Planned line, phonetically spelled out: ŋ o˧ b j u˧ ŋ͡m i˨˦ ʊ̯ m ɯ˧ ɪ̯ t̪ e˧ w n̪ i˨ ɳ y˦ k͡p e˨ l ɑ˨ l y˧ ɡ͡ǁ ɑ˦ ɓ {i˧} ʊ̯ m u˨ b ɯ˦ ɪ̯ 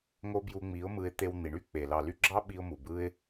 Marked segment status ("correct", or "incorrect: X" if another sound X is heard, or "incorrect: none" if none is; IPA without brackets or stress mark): correct